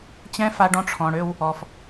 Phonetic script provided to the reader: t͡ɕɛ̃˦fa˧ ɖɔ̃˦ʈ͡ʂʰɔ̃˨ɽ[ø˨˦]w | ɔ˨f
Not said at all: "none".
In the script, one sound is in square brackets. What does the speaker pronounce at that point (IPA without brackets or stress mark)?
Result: ø˦